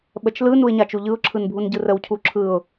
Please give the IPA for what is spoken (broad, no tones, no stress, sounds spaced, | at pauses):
ɓ ə t͡ʃ l ɯ n u ɪ̯ ɲ a t͡ʃ u ʎ ɯ ʊ̯ ǁʰ ɯ n bʱ u n ɟ ɯ r ə w cʰ u ǁʰ ɯ ʊ̯